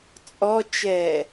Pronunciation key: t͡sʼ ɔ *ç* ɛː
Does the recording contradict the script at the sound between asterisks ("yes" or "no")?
yes